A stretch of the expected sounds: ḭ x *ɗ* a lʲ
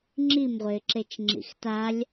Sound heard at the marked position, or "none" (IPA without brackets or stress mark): t